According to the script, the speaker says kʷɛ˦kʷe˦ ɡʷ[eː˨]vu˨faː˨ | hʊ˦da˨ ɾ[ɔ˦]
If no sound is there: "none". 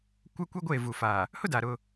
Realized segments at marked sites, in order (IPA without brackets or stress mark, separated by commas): eː˦˨, ʊ˦